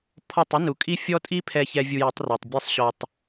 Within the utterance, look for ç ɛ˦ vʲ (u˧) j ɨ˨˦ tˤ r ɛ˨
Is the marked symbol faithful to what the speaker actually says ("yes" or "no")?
yes